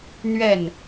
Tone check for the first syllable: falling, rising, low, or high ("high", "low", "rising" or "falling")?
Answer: falling